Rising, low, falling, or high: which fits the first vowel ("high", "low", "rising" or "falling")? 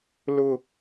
high